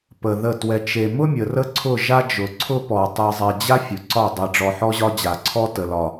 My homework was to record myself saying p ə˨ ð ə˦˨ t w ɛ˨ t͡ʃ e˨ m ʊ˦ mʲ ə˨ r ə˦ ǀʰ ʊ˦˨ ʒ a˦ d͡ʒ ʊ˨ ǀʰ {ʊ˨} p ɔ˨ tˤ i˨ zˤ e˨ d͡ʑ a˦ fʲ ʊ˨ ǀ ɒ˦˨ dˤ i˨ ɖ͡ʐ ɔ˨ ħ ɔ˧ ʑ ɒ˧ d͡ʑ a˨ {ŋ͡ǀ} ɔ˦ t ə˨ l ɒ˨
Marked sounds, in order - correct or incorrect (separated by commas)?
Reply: incorrect, incorrect